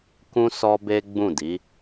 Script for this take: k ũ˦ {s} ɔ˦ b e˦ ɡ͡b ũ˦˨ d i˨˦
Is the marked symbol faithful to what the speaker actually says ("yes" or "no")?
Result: yes